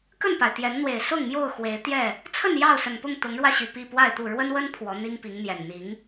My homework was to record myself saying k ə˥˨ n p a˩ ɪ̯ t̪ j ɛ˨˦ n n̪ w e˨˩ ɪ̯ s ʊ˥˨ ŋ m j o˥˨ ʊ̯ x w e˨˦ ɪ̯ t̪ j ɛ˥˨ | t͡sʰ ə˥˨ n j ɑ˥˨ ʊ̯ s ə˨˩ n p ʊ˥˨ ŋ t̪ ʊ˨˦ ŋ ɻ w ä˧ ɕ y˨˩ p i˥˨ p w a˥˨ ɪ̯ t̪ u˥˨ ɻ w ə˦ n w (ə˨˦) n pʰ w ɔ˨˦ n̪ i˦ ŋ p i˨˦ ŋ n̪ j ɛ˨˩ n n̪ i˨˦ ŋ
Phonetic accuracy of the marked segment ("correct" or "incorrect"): incorrect